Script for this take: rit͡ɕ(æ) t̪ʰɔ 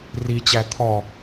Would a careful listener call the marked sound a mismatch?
no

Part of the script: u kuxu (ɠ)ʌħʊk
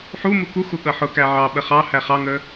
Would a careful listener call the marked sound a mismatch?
no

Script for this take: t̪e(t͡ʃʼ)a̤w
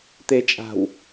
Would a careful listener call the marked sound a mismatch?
no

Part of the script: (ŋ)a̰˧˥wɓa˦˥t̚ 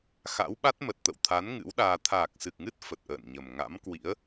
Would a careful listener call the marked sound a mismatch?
yes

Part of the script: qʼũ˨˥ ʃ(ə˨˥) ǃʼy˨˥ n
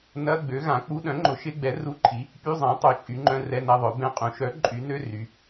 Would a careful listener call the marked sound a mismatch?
yes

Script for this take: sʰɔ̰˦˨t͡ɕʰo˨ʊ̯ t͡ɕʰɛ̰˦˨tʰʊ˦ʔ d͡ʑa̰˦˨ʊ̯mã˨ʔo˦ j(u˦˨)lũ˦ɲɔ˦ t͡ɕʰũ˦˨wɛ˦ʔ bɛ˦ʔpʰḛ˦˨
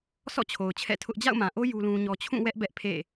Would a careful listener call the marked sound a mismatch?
yes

